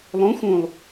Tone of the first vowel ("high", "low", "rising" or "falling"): rising